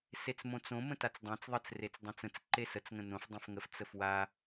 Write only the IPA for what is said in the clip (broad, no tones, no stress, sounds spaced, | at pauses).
s e t͡s m õ t͡s õ m ə̃ t a t͡s dˤ ã t͡s ðˤ ə t͡s r e t͡s dˤ ə̃ t͡s ə̃ t͡s ǃ e s ə t͡s ŋ ə̃ n õ f dˤ õ f ŋ ə f t͡s ə f w a